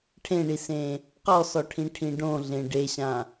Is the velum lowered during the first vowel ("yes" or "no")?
yes